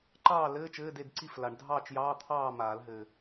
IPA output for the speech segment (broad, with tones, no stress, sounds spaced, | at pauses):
ǃ ɑː˥˨ l ɘː˧˥˧ t͡ʃ ɘː˧˥˧ d e˥˨ d ǀ i˥˨ f l a˨˩˦ ɳ dʱ ɑː˥˨ t͡ʃ j ɑː˧˥˧ t̪ʰ ɑː˥˨ m aː˨˩˦ l ɦ ɘː˨˩